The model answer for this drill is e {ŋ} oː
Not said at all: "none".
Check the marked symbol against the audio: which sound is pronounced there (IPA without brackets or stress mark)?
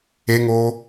ŋ